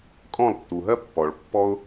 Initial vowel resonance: nasal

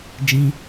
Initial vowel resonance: nasal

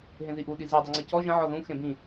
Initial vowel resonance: nasal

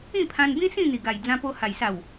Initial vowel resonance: nasal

